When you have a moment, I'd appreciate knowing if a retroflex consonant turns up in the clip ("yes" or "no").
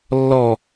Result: no